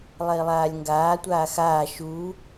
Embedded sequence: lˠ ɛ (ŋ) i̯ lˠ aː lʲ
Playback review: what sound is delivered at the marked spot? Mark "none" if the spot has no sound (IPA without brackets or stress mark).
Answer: none